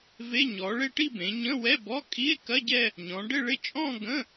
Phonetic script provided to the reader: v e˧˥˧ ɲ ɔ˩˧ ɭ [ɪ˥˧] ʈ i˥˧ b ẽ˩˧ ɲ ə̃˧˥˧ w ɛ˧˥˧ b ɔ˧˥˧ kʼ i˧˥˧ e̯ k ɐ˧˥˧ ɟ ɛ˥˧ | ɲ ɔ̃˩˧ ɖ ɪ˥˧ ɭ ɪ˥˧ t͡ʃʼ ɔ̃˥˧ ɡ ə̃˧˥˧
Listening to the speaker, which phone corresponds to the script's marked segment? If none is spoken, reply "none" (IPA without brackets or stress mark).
ɪ˥˧